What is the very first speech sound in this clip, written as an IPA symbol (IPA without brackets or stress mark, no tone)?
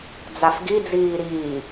d͡z